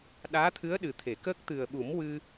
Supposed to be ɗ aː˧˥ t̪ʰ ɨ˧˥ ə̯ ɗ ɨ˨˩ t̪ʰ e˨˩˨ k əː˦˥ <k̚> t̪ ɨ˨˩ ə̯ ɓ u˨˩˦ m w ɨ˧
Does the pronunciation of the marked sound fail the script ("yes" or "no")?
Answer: no